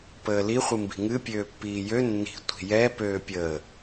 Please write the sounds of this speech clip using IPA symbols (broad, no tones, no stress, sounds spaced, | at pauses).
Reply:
p əː l i χʷ ɨ m b i̤ ŋ ɨ pʲ øː pː iː j ø nː i̤ tʷ i̤ j ɛ p øː pʲ əː